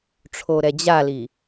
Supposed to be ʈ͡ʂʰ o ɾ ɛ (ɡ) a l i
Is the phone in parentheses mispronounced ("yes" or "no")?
yes